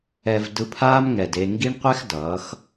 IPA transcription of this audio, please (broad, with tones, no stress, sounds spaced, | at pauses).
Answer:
ɛ˧ v d ɯ˧ pʰ aː˦ m ŋ ɛ˨ d e˧ ŋ ɡ i˦ ɳ qʷ ɛ˦ x d ʌː˨˦ x